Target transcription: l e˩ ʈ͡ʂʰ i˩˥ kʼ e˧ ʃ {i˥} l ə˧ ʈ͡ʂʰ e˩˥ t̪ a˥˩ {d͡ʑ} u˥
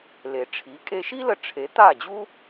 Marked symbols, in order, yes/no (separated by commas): yes, yes